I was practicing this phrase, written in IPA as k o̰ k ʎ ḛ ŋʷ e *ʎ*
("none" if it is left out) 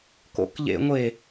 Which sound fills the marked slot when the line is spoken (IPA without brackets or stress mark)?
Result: none